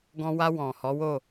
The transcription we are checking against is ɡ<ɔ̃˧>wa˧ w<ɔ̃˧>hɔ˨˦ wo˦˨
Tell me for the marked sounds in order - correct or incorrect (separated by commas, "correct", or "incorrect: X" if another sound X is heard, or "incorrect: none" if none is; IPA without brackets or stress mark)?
correct, incorrect: ɔ̃˨